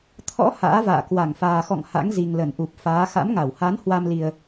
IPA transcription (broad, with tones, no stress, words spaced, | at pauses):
t̪ʰɔ̰˧˥ ha̰ː˧˥va̰ː˧˨ kwa˧˩ŋfaː˨˩xɔ̰˧˨ŋ ha̰˧˥ŋzi˨˩ŋlə˧˩nʔu˨˩p̚ faː˨˦ xa̰˧˥mŋa˧˩w ha˨˦n hwa˧mli˨˩ə̯